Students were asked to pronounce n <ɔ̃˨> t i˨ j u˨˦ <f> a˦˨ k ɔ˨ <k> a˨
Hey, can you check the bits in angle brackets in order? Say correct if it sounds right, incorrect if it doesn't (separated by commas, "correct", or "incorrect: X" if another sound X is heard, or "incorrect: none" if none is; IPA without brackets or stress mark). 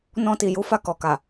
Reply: incorrect: ɔ̃˧, correct, correct